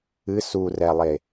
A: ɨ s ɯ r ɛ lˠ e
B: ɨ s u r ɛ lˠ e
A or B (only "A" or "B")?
B